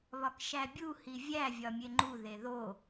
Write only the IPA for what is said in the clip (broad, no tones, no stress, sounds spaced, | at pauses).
β ɒ k ʃ æ bʲ u h i vʲ æ vʲ ɒ mʲ e ŋ͡ǃ u ð e ð o